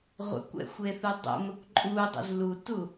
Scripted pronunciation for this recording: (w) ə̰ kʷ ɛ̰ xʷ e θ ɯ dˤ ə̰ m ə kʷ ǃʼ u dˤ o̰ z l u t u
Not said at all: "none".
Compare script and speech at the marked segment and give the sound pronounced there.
ʁʷ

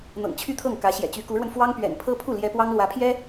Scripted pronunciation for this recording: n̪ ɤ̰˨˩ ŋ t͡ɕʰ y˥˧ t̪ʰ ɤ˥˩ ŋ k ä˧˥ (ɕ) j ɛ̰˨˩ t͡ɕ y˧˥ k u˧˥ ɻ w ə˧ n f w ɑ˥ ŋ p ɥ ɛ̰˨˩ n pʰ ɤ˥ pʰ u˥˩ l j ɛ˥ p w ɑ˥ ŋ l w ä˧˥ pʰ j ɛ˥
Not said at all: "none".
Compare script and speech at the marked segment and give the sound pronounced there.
ɕ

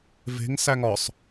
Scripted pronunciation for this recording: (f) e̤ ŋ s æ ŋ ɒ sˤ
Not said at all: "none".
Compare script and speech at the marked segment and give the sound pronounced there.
v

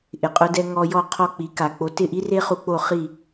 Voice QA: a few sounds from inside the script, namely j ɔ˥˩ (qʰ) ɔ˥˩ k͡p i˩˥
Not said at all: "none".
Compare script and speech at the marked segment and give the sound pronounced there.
qʰ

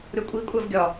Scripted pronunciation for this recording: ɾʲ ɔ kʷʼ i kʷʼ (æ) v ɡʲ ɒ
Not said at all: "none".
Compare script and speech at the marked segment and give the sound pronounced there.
æ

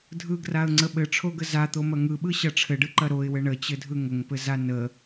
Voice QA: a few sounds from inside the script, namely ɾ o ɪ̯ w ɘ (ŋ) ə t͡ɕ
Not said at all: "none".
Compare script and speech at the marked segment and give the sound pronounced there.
ɳ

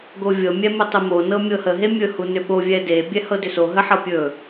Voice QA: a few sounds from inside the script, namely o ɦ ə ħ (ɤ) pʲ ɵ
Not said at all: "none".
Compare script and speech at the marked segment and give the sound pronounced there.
ɤ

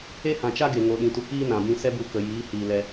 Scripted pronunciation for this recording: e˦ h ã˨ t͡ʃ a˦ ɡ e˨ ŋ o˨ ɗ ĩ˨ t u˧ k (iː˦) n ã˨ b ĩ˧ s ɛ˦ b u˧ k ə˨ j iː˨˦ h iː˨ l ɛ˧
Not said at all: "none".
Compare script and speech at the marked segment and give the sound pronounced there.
iː˦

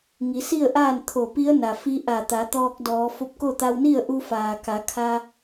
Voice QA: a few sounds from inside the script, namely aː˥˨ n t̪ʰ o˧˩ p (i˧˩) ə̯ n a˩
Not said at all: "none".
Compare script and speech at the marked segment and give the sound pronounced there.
i˧˥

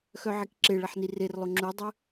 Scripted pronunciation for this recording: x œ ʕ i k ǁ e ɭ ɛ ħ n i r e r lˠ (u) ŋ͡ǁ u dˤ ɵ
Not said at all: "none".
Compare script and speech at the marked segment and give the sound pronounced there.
o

